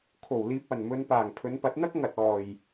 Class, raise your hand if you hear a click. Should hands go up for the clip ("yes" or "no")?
no